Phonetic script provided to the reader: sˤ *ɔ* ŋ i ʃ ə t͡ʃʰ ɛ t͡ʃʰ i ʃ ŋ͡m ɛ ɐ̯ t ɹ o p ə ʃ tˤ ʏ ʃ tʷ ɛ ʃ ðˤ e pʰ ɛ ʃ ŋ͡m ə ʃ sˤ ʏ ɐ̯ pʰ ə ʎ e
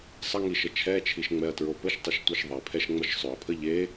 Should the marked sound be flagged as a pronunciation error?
yes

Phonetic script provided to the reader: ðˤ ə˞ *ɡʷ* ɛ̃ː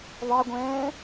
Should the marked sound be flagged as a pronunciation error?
no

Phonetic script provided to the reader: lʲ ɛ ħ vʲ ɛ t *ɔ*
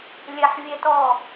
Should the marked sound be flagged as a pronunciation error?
no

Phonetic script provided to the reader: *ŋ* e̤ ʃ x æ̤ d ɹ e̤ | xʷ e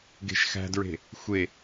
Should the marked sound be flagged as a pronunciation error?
yes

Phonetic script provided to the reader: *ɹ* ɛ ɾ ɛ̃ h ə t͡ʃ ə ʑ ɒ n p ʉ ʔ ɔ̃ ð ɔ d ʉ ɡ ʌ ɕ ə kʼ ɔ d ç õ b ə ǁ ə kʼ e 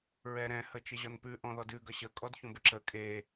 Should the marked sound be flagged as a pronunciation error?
no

